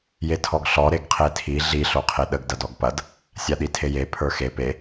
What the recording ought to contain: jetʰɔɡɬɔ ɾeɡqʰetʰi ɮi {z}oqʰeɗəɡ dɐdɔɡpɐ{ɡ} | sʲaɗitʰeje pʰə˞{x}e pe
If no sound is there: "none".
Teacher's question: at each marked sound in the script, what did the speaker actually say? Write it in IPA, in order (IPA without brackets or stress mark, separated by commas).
ɬ, d, x